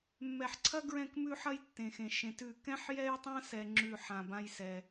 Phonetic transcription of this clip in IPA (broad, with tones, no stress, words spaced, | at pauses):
mːɛ˩ħǀʰɐ˦ɡɹɛ̃˧˩k mʉ˦ħɐ˦jtːẽ˩xẽ˩ ʃẽ˩tʉ˧˩ kɛ̃˦ħjɛ˦jtˤã˦sɛ˩ ŋ͡ǁʉ˧˩ħã˩bã˦jsɛ˩